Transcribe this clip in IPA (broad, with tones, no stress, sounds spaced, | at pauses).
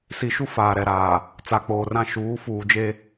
s i˨ ʃ u˦ f aː˨ ɾ ɛ˦˨ ɾ aː˨ | t͡s a˨ k͡p oː˨ r ã˦˨ ʃ uː˨˦ f uː˨ d͡ʒ e˦